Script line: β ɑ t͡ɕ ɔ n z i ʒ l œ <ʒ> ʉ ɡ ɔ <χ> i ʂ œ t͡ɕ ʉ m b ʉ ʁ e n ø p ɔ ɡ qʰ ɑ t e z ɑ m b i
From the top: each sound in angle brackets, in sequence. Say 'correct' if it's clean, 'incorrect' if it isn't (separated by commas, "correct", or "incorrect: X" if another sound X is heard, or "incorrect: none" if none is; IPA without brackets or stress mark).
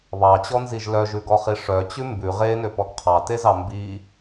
correct, correct